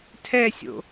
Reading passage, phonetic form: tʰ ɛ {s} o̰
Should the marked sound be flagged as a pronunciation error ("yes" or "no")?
yes